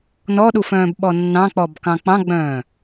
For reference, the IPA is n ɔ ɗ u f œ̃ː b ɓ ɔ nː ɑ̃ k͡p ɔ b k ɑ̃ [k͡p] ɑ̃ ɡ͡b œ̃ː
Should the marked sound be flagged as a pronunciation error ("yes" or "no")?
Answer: no